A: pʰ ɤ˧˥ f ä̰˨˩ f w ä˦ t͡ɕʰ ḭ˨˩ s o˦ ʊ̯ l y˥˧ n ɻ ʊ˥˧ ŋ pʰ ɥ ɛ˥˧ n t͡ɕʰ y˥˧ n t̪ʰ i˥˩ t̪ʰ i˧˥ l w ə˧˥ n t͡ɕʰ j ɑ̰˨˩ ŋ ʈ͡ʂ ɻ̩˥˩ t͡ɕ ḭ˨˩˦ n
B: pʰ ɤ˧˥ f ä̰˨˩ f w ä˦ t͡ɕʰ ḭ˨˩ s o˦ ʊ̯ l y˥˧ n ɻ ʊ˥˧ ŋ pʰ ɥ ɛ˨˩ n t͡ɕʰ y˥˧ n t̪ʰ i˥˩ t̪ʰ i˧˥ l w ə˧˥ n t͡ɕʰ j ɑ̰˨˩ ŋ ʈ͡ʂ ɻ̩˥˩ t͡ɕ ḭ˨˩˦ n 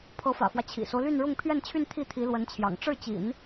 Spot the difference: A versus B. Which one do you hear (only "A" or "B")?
A